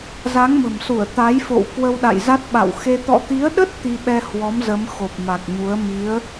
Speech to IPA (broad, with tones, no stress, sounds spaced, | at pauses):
z a˨˦ ŋ m ə̤˨˩ m s u˧˩ ə̯ t̪ a˨˦ j f o̰˧˨ w k w ə˧ w ɗ a̰˧˨ j z a˦˥ t̚ ɓ a̰˧˨ w x e˧ t̪ ɔ̰˧˨ t̪ i˨˦ ə̯ ɗ ə˦˥ t̚ t̪ i˧ ɓ ɛ˧ h w ɔ˨˦ m z ə˨˦ m x o˨˩ p̚ m a˨˩ k̚ ɲ u˨˦ ə̯ m i˨˦ ə̯